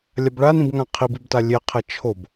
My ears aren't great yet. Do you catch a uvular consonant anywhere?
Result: yes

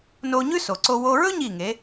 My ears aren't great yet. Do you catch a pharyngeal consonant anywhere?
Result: no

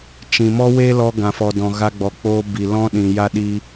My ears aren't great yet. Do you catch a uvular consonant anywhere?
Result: no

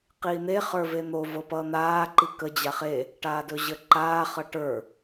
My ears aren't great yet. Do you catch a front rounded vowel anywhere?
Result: no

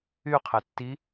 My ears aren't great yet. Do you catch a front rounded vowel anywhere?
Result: yes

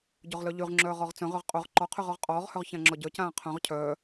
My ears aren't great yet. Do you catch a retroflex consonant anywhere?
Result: no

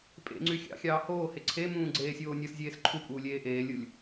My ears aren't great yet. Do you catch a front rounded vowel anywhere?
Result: yes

